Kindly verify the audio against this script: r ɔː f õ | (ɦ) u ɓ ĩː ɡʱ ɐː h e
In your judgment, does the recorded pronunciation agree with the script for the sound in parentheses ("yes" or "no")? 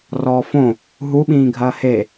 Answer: yes